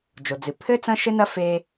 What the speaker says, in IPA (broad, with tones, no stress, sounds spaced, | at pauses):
d͡ʒ o˩ d͡z ɨ˩ pʰ ɘ˥ t͡s ɐ̃˥ ʃ ɘ˥ n ɐ˥ f e˧